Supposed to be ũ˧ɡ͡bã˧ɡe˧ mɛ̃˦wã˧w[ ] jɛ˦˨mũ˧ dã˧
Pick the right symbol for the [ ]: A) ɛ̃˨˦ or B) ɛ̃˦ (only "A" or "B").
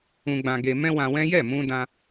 B